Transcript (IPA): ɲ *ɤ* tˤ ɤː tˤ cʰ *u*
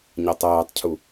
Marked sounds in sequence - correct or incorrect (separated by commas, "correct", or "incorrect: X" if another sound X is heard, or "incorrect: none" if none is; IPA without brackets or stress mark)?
correct, correct